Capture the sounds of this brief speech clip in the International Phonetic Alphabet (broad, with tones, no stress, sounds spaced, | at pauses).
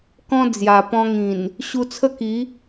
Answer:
k ɔ̃˦ d͡z j a˨˩ p ɔ̃˧ ŋ ĩ˨˩ n | ɕ u˧ t͡sʰ ə˥˧ k i˨˦